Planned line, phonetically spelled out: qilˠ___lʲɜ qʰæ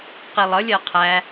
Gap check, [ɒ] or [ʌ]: ʌ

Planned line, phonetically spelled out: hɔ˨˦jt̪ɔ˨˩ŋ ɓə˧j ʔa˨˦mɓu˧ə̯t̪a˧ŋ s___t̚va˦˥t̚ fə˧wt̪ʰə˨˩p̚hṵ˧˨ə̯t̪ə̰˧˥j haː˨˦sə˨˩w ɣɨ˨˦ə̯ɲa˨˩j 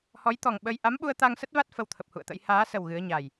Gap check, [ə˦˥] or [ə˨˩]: ə˦˥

